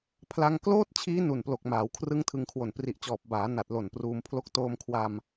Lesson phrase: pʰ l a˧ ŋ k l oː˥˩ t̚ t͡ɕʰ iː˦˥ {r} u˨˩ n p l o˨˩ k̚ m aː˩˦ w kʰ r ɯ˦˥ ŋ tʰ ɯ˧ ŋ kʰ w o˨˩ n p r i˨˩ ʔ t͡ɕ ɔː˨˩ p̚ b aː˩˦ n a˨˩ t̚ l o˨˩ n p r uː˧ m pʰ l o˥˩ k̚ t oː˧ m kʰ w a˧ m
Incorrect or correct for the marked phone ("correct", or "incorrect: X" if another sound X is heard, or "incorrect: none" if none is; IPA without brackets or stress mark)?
incorrect: n